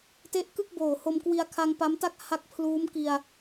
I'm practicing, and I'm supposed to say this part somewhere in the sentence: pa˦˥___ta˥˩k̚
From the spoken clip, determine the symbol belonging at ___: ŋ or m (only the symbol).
m